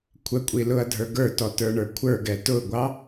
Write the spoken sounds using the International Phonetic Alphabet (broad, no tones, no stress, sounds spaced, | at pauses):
kʷʰ ə kʷʼ i l ʊ ɐ̯ dʱ ə˞ ɡ ə˞ t ɔ t ə˞ ɳ ə˞ kʷʰ ə˞ ɡ ɛ t ʊ ɡʷ ɑ